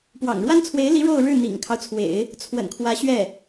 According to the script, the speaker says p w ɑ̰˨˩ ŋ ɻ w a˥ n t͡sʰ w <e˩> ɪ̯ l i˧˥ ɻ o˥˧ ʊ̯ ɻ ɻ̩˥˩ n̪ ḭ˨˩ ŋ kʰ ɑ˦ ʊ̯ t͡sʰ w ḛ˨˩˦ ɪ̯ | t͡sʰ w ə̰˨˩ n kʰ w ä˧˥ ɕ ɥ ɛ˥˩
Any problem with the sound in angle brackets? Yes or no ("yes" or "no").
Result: yes